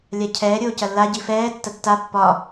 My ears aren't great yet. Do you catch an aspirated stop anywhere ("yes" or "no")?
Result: yes